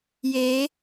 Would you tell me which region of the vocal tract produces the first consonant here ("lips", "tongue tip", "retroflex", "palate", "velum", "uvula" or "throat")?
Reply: palate